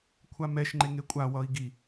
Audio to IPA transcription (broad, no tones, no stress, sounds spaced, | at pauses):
kʷʰ a m ɛ ʃ ŋ͡ǃ e ŋ e kʷʼ a w ʌ i̯ ɡ i